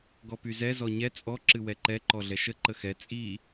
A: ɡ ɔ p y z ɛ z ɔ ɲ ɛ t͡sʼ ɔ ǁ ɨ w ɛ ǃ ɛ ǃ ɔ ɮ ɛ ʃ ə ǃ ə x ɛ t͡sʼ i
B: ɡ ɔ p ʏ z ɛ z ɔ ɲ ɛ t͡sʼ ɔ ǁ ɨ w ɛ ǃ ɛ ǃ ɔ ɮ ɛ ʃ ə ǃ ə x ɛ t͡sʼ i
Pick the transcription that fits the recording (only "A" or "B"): A